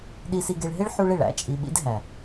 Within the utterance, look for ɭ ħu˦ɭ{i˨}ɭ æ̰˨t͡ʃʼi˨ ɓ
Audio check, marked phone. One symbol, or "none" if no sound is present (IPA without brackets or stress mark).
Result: e˨